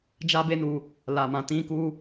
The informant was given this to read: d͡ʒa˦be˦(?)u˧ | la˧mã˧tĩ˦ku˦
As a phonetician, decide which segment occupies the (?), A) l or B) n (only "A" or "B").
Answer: B